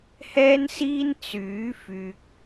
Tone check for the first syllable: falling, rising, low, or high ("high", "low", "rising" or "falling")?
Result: high